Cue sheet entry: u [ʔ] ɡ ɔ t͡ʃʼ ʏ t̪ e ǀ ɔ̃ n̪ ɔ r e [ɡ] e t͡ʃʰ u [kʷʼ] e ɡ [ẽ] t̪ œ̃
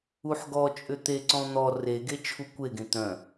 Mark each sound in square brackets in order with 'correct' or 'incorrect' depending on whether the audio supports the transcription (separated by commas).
incorrect, correct, incorrect, correct